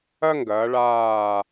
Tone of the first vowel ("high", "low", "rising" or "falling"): high